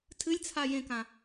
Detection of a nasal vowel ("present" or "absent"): present